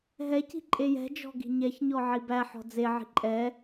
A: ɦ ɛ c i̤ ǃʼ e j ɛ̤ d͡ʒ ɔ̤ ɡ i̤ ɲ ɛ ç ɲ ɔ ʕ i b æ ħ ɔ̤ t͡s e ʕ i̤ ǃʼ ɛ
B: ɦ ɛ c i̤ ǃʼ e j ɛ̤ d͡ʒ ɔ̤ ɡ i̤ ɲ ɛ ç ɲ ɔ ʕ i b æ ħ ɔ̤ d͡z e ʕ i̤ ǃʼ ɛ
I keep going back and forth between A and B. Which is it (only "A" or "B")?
B